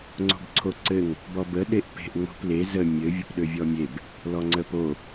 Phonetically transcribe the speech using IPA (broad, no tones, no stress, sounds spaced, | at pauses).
ŋ͡ǀ o̤ b ǀʰ o ǀ ɘ ŋ | b ɔ b ə ɗ e ʔ p e̤ ʔ ŋ͡m o̤ p l e z ə mʲ ɘ vʲ ə p ɗ ø vʲ ɔ mʲ e b | l ɔ ŋ͡ǀ ə p o